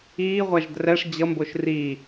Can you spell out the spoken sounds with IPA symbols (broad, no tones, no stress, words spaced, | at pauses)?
iːʁʷaʒ drɛʂ d͡ʑʌmboʃ ri